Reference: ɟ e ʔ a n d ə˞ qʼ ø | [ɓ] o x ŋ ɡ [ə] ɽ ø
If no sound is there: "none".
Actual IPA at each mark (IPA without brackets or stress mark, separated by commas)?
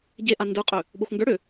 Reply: ɓ, ə˞